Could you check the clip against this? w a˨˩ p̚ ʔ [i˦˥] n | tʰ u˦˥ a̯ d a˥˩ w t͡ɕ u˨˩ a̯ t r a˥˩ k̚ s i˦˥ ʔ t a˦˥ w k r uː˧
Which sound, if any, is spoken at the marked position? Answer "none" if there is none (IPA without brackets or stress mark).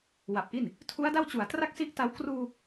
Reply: i˥˩